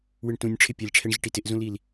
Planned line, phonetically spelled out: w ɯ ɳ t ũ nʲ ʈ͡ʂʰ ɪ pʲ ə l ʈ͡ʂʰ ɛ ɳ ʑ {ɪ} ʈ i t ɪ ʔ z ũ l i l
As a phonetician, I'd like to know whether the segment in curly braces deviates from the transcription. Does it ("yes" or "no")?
no